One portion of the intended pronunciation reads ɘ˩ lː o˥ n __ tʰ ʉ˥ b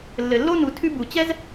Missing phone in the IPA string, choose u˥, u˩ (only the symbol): u˩